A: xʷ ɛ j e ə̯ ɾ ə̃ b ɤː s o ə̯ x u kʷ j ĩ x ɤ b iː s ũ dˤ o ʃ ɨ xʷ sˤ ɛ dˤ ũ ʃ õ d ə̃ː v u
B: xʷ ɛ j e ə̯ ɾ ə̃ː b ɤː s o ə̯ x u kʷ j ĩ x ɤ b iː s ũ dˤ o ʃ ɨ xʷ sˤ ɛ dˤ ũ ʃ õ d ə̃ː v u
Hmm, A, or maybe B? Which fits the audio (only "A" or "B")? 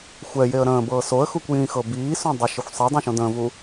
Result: B